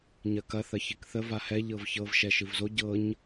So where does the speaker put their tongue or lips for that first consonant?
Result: palate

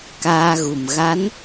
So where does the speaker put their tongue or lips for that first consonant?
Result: velum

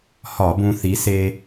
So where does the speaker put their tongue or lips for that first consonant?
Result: throat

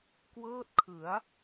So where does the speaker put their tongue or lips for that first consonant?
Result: velum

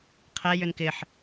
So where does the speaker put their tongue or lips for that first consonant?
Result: uvula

